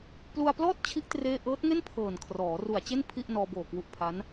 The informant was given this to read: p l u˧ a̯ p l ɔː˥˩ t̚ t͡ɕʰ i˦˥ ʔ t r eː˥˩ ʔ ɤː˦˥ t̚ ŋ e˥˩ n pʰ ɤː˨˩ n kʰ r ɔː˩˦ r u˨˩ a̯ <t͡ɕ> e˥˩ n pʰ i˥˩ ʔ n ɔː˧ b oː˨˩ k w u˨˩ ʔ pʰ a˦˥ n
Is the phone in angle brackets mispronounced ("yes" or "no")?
no